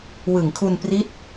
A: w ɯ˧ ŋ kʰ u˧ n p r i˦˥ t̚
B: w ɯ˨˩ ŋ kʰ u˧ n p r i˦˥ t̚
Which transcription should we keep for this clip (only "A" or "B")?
B